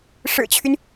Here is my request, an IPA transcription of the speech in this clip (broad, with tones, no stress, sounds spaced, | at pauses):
ʂ ɻ̩˨˩ t͡ɕʰ y˦ n